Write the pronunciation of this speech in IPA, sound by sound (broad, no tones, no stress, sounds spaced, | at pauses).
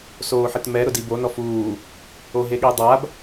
s oː ħ ɪ t m ɛ ɾ ʊ d i b o n ɔ f uː | o ɦ e ɠ i dˤ a b